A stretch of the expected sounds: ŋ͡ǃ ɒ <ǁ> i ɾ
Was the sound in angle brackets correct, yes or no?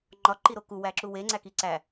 no